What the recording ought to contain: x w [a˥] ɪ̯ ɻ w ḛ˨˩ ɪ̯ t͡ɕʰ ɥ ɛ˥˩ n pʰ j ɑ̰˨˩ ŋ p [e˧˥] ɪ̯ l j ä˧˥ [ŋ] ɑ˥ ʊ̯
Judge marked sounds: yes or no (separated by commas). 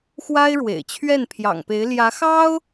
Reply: yes, yes, no